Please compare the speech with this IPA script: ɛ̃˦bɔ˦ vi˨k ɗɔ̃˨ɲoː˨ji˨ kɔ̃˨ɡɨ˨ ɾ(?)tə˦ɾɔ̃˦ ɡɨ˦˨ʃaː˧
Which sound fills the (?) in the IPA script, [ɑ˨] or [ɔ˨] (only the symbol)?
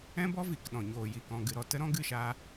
ɔ˨